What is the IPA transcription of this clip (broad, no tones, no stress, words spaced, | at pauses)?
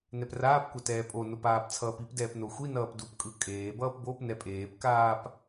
nɛpraːpkʷa tɛːpʼonop aːpt͡sʰʌːpipdɛːp noxʷinʌːp dupkʼɯ kʼeːbʌːp bop nɛpʼeːpkaːp